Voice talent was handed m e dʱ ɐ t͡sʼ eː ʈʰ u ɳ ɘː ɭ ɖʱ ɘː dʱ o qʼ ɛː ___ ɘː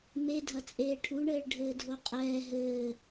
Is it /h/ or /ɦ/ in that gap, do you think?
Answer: ɦ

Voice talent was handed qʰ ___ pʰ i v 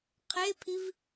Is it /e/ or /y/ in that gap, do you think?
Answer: e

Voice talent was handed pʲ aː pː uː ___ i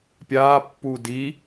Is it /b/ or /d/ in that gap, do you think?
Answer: d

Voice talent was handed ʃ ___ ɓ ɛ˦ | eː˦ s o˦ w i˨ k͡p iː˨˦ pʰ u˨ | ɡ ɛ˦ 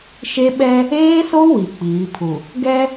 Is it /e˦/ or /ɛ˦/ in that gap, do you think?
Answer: e˦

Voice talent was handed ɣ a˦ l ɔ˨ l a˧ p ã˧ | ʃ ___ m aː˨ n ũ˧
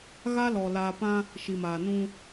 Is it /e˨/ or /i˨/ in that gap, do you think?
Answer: i˨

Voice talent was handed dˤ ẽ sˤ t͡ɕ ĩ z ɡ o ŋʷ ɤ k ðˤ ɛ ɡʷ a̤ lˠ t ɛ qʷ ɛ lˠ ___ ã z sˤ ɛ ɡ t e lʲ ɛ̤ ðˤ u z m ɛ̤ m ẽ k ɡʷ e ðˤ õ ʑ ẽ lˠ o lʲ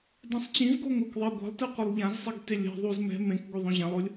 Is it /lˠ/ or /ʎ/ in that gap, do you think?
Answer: ʎ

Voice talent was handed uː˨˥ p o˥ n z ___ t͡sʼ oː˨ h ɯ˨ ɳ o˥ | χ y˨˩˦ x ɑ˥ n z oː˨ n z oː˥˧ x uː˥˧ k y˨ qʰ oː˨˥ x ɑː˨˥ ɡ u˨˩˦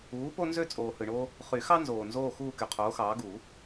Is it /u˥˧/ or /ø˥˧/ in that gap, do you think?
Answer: ø˥˧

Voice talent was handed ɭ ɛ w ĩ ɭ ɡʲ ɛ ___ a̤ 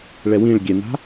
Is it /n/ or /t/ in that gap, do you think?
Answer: n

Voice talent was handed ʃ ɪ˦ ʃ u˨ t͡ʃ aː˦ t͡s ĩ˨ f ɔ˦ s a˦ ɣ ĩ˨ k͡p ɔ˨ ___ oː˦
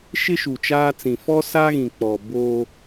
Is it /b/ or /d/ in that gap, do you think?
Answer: b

